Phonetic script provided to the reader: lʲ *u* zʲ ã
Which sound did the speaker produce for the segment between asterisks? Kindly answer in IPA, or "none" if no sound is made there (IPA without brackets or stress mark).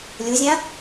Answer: u